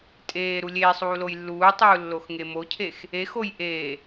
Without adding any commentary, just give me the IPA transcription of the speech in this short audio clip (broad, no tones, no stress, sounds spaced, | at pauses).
tʼ eː ɾ u lʲ eː sˤ uː l o j lː uː tˤ uː lː o x ŋ e m o cʰ e x | e x o j ʔ eː